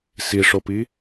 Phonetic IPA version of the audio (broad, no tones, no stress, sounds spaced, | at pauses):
s i ʂ o p i